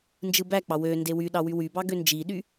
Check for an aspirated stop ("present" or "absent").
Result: absent